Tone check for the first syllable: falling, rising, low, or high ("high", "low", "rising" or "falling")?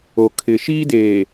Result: low